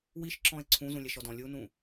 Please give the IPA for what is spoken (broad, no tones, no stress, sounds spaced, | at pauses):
w i ʃ ǁ ɔ̃ e̯ ǀʰ ũ z ũ lʲ ɛ ʃ ɔ d ɔ̃ lʲ u n ũ